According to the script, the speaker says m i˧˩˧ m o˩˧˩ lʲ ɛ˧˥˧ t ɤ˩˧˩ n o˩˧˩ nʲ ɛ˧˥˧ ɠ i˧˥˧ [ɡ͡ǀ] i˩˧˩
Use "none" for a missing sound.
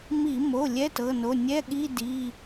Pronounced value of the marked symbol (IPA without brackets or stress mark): d